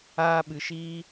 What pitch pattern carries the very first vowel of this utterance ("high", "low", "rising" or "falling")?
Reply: high